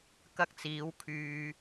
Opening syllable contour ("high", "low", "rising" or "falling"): high